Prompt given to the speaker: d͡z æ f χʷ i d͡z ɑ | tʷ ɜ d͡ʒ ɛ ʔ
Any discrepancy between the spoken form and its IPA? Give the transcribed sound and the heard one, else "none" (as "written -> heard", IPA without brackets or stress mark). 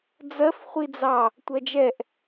æ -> ɜ